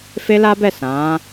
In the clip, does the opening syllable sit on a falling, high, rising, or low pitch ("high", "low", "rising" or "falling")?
high